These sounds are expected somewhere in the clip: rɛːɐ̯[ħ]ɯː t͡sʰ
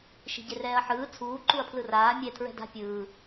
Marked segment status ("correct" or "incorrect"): correct